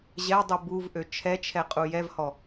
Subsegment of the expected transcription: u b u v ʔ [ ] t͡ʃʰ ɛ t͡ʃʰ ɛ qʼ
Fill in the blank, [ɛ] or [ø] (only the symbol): ø